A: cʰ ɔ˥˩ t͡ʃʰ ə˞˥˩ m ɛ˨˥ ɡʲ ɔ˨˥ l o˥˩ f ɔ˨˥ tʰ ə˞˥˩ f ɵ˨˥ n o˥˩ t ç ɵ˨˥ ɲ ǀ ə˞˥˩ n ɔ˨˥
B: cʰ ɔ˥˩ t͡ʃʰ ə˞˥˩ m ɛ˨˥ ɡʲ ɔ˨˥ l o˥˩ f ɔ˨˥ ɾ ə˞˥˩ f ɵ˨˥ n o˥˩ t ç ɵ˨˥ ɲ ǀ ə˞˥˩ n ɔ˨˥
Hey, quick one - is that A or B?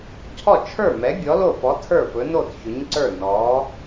A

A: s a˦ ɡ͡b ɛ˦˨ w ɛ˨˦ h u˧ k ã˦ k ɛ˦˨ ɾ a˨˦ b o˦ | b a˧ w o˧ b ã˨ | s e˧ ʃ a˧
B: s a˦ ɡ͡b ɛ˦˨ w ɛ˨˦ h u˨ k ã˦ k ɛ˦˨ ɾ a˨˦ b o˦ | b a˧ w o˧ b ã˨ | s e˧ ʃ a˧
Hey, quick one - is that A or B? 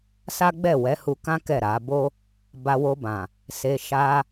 A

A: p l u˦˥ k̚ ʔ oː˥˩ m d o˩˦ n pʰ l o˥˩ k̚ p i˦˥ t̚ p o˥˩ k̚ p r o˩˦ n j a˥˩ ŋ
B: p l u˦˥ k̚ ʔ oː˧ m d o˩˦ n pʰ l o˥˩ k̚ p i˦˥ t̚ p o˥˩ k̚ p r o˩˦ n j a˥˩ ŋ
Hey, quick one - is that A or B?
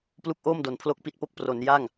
A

